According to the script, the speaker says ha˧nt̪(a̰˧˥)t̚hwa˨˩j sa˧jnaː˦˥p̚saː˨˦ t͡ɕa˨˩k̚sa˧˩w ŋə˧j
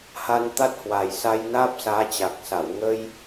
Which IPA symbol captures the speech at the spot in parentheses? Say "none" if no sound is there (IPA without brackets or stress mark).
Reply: a˦˥